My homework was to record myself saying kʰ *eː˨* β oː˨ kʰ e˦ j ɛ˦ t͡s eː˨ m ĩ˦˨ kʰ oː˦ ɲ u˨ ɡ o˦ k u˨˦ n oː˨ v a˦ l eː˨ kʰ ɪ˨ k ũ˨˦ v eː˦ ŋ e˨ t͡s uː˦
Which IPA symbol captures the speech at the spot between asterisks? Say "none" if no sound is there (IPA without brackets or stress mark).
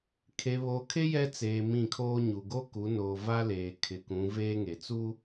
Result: e˨